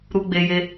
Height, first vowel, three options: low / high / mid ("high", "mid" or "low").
high